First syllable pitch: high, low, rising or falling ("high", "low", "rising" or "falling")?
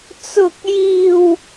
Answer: high